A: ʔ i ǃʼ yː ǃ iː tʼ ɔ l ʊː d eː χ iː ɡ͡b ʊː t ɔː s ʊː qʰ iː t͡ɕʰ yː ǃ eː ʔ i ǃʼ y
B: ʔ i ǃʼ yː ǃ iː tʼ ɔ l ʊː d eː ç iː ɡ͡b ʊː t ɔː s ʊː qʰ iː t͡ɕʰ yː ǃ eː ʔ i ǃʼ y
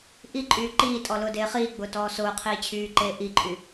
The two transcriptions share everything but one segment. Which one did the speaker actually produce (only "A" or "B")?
A